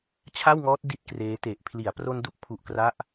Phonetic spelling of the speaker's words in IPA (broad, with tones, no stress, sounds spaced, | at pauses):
t͡ɕʰ a˥˩ w ŋ ɔː˦˥ t̚ d i˥˩ t̚ k r eː˦˥ t e˨˩ ʔ pʰ l i˩˦ a̯ p r o˧ n d u˦˥ k̚ pʰ u˨˩ ʔ k r a˦˥ ʔ